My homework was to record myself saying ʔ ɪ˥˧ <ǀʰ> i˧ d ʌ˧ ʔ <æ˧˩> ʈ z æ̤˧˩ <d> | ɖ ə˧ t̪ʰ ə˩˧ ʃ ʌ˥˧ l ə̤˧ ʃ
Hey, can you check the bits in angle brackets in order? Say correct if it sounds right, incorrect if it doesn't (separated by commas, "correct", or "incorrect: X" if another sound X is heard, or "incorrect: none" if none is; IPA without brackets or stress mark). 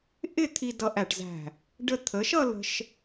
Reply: incorrect: t̪ʰ, correct, incorrect: none